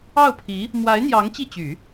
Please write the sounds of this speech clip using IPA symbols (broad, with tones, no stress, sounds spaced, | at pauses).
ɑ˥˩ ʊ̯ pʰ i˧˥ | m w a˧˥ ɪ̯ n̪ j ɑ˧˥ ŋ t͡ɕ i˥˩ t͡ɕ y˨˩˦